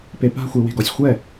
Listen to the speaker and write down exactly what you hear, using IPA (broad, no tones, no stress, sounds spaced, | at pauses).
p e p a̤ xʷ e w e̤ ɡ ɔ sʲ xʷ ɛ